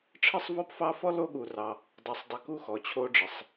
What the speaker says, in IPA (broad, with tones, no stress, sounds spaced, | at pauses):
ʈ͡ʂʰ ə˦ sˤ v ɔ˦ p f ɑ˦ f ɔ˥ l o˦ ɠ u˨ r ɑ˨ | dˤ ɑ˨ sˤ dˤ ə˨ k u˦ x ɔ˩ t͡ɕʰ o˥ ɖ͡ʐ ə˩ sˤ